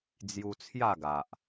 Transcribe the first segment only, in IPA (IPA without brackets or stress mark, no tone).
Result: d͡z